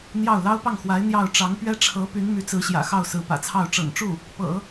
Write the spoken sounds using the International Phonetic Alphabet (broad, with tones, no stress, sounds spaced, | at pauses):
n̪ j ɑ˥˩ ʊ̯ l ɑ˥ ʊ̯ p ɑ˥˩ ŋ x w a˧˥ ɪ̯ n̪ j ɑ˥˩ ʊ̯ ʈ͡ʂ ɑ˧˥ ŋ p ɥ ɛ˥ ʈ͡ʂʰ ɤ˧˥ p y˧˥ n m y˧˥ t͡s ɹ̩˧˥ ɕ j ä̰˨˩ x ɑ˥˩ ʊ̯ s ɹ̩˧˥ p ä̰˨˩ t͡sʰ ɑ˥˩ ʊ̯ ʈ͡ʂ ɤ̰˨˩ ŋ ʈ͡ʂ u˥˩ | p ɤ̰˨˩˦